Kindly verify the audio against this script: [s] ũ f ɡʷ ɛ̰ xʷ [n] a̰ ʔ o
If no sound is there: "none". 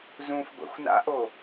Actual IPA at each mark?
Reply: z, n

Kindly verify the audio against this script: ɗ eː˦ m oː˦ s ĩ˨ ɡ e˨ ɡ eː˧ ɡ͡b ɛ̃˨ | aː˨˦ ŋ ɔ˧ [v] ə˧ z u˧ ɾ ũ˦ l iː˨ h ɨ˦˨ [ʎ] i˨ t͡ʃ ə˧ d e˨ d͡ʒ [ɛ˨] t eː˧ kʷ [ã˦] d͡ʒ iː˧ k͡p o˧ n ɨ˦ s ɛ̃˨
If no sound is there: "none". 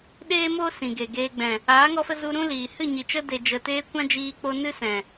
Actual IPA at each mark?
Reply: f, ɲ, ə˨, ã˦

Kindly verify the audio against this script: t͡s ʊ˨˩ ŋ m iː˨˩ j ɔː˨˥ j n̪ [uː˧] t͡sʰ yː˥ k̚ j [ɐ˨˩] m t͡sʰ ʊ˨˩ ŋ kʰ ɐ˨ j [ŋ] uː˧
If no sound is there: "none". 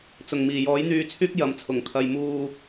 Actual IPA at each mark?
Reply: yː˧, ɐ˨, m

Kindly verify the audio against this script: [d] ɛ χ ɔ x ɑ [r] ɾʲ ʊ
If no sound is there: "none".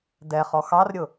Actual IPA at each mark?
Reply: d, r

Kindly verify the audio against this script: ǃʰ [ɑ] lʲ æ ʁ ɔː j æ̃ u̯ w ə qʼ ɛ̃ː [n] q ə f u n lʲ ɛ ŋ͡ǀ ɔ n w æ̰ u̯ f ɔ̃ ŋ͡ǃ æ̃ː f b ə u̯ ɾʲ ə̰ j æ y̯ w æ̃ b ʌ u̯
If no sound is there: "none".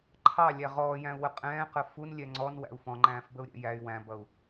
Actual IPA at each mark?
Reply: ɑ, none

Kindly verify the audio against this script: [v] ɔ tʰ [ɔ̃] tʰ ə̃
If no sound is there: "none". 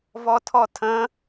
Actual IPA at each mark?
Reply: v, ɔ

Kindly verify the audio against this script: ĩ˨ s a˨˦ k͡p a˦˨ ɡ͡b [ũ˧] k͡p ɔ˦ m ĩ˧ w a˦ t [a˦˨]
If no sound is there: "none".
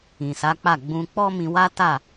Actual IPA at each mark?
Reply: ũ˧, a˦˨

